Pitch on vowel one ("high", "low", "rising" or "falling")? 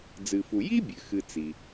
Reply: low